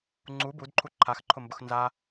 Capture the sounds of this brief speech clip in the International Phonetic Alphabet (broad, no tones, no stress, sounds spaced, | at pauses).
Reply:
ŋ͡ǀ u b u d ǃʰ u ǃʰ a x ǃʰ ʊ m b ʊ x n z a